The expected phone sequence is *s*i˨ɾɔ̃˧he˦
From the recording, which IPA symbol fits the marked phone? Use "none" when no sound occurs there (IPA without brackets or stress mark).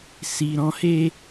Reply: s